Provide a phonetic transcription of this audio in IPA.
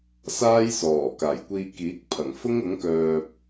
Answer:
s aː˥ j s ɔː˨˩ k aː˨˩ j kʷ iː˧ k iː˨˥ k̚ pʰ ɐ˨˩ ŋ f ʊ˥ ŋ ʊ˨˥ ŋ k œː˧ p̚

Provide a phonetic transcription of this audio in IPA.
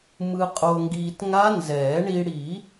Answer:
m ɯ˧ qʼ o˧ ŋ ɡ iː˧ t ŋ a˦˥ n z ɛː˨˩˦ ɳ i˧ ɽ i˨˩˦

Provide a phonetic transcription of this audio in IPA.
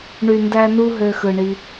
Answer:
ɳ y˨ n d æ˧ n u˧ ɦ ø˧ x ɯ˨ ɳ i˧

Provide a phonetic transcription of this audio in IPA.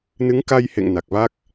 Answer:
n ɨ˨˦ ŋ k a˧ j h ḛ˧˨ ŋ n a˨˩ k̚ v a˦˥ k̚

